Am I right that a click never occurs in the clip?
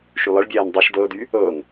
yes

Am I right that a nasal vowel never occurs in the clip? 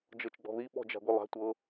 yes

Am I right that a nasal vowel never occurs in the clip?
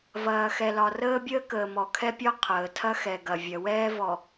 yes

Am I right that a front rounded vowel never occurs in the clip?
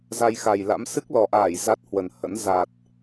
yes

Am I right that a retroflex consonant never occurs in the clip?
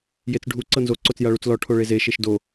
no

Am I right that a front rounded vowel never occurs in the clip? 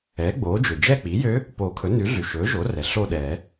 no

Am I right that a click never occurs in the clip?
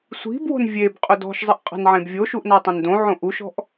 yes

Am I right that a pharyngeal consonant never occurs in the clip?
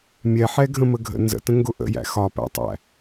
no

